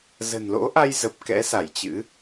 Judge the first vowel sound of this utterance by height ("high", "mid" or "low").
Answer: mid